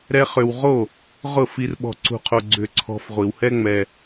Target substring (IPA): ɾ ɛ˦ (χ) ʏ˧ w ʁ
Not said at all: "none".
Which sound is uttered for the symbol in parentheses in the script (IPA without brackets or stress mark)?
χ